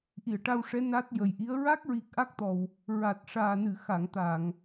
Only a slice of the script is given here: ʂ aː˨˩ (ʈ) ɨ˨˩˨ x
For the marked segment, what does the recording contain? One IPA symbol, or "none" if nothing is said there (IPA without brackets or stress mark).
n